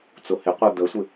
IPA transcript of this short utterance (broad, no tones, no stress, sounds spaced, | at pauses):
t͡s ʊ h ɪ qʷ œ d̪ ə sʷ ɪ